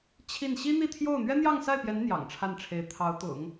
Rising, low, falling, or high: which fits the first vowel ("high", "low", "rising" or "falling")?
falling